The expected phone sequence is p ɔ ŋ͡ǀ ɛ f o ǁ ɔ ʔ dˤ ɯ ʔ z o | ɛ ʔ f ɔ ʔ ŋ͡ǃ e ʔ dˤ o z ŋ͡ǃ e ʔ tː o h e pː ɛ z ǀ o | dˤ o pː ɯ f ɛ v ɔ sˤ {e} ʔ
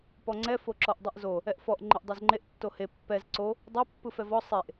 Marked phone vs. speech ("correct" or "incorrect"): correct